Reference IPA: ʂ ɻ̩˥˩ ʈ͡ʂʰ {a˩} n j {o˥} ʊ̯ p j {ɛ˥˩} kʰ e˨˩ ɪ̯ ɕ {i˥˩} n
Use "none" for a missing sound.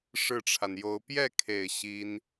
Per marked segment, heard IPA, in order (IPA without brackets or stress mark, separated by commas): a˩, o˧˥, ɛ˥˩, i˥